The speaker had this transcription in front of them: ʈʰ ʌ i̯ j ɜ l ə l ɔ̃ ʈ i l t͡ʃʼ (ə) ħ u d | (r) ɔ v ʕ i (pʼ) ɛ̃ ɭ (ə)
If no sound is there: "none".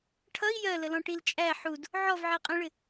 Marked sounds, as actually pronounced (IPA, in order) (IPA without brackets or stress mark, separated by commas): æ, ʕ, qʼ, ɪ